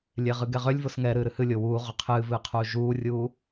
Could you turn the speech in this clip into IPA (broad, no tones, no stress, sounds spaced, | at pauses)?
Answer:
lʲ e ʁ ɨ ɡ ɛ ʁ ʏ lʲ v o s ŋ ɛ ɾ ɨː ɾ ɨ h ɨ lʲ o w uː ʁ ʏ qʰ ɨː v ɨː qʰ uː ʒ uː rʲ uː